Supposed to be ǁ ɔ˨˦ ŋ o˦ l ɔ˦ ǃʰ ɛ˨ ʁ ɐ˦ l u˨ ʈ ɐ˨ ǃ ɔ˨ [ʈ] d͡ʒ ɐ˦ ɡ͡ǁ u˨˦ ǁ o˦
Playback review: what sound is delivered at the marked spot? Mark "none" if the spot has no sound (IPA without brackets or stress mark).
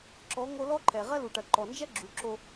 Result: n